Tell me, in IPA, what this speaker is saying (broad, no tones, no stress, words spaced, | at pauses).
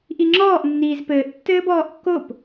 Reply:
ʔiŋ͡ǁɔːʔ nːiːzpɘːʔ tːɘːbɔːʔkːop